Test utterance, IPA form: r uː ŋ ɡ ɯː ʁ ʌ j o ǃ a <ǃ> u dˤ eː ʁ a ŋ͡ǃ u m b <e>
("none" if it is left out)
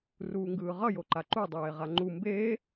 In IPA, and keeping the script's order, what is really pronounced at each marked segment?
ǃ, eː

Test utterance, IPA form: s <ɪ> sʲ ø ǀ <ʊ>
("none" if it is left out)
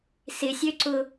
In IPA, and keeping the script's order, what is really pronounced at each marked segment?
ɪ, ʊ

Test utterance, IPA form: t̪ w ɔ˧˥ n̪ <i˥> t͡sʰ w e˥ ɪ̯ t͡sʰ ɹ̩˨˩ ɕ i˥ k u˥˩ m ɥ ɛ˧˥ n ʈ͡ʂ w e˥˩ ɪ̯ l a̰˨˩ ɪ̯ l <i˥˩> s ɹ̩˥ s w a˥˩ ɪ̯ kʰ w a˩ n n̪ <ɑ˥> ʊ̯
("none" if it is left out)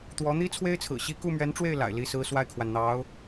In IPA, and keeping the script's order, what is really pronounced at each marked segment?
i˥, i˥˩, ɑ˧˥

